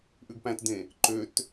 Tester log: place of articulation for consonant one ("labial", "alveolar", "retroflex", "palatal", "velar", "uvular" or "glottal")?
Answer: glottal